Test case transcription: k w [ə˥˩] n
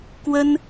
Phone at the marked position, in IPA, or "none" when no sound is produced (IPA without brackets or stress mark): ə˥